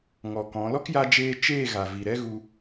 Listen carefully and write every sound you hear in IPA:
ŋ ɔ˨ k ɔ̃˨˦ l ɔ˦ k j a˧ d͡ʒ eː˧ t͡ʃ eː˦˨ ɣ a˨ v i˨ ɾ ɛ˦ ɣ u˧

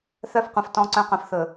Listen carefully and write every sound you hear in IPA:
θ œ˦˨ f qʷ ɛ̃˨ f t ɔ̃˨ ǀ œ̃˨ q œ̃˨ f θ ɵ˨

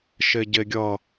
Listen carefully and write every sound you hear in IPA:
ʃ e ɟ e ɡʲ ʌ

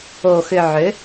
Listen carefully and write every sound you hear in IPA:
o˨ x ʏ˨ ʕ ø˨˦

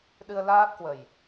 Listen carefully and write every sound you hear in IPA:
ɗ ɨ˧ ə̯ l aː˦˥ p̚ k w ə˨˩ j

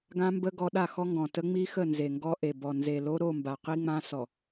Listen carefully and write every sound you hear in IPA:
ɡ ã˦ m b ə˦ ɡ ɔ˨˦ ɗ a˦˨ x ɔ˦ ŋ ɡ ɔ̃˨ t ə˦ ŋ͡m i˦ x ə˦˨ n z e˨ ŋ ɡ ɔ˦ ʔ e˨ b ɔ˨ n z e˨ l o˦ ɾ o˦˨ m b a˨ q i˦ ŋ͡m ã˦ s ɔ˨

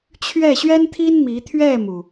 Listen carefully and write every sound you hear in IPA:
t͡ɕʰ ɥ ɛ˥˩ ɕ ɥ ɛ˥ n t̪ʰ i˥ n m i˧˥ t̪ʰ ɥ ɛ˥˩ m u˩

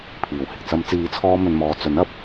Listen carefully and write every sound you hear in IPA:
pʰ iː˨˩ w h ɪ˨ k̚ t͡s ɐ˨˧ m t͡s iː˨˧ t͡sʰ ɔː˧ m ɵ˧ n m ɔː˧ t͡s ɵ˨˥ n ɐ˧ p̚

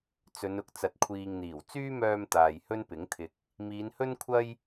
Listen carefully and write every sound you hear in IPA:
t͡s ɵ˨˧ n ʊ˨ k̚ t͡s ɐ˨ t̚ kʷʰ iː˨ ŋ n̪ iː˨˩ w t͡s yː˥ m œː˧ m t̪ aː˨ j h ɵ˥ n p ɪ˨˥ ŋ t̪ʰ ɪ˨ k̚ | m iː˨˧ n h ɵ˥ n kʷʰ ɐ˥ j

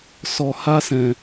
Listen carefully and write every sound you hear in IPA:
s ɔ˧ h a˦ s ɛ̃˧

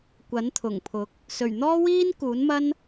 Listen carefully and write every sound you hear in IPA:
kʷ ɐ˨˥ n t̪ʰ ʊ˨˩ ŋ pʰ ʊ˨˥ k̚ | s ɵ˨˩ ɥ n̪ ɔː˥ w iː˥ n k uː˨˥ n m ɐ˥ n

